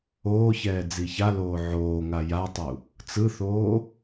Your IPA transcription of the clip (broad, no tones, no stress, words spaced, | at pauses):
oːçɛː d͡ziçaloː ʕoːŋa jatˤu | t͡sɯθoː